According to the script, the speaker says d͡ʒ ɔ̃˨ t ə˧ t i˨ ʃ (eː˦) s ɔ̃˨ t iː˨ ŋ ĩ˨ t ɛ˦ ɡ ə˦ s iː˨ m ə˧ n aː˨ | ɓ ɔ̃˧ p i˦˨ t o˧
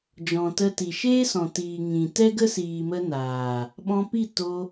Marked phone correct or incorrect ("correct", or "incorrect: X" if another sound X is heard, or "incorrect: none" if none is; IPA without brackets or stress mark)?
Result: correct